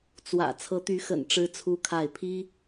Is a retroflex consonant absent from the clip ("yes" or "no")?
no